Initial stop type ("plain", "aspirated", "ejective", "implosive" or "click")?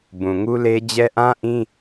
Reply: plain